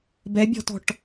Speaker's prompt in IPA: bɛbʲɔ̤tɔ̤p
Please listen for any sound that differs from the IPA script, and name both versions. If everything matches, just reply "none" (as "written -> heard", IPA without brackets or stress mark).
p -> ʈ